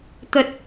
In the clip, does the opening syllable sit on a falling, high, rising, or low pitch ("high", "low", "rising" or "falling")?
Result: low